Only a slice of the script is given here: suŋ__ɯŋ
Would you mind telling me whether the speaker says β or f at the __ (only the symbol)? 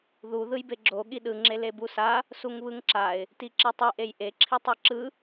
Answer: β